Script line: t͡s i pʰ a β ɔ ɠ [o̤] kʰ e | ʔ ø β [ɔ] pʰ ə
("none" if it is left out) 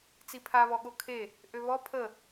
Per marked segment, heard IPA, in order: o, ɔ

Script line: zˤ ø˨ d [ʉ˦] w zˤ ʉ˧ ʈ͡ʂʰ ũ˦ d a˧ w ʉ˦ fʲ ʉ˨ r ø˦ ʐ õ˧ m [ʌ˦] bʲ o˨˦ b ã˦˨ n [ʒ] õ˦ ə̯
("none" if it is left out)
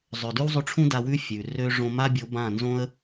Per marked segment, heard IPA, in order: ʉ˦, a˦, z

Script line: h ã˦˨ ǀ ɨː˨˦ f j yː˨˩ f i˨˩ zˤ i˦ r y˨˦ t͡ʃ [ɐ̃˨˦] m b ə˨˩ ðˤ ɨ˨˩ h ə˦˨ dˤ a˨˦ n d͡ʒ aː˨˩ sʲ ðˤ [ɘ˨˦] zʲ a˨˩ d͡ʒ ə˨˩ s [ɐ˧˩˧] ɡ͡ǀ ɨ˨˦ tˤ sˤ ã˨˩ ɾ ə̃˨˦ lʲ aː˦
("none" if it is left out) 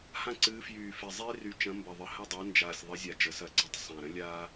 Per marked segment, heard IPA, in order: ɐ̃˨˦, ɘ˨˦, ɐ˧˩˧

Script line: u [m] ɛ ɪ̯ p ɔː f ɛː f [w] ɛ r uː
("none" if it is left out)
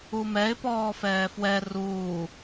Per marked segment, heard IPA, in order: m, w

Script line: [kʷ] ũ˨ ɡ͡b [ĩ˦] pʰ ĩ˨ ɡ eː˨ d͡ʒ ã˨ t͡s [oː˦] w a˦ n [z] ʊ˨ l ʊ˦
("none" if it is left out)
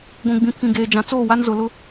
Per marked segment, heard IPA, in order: ɡʷ, ĩ˨, oː˦˨, z

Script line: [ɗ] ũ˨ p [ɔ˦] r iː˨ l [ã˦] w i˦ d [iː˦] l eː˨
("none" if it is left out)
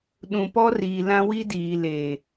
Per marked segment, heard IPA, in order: ɗ, ɔ˦, ã˦, iː˨

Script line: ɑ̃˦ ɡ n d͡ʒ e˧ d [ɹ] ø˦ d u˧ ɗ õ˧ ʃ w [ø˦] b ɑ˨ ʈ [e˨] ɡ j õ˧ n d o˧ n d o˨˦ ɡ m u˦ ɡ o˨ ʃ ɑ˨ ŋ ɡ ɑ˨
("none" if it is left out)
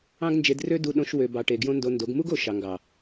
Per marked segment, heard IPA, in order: r, ø˨, e˨

